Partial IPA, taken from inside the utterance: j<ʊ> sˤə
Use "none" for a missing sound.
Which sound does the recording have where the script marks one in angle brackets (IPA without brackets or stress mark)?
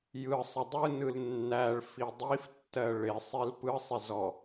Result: ɯ